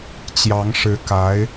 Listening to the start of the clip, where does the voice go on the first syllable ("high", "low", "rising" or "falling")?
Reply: rising